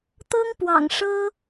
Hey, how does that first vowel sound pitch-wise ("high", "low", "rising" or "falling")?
high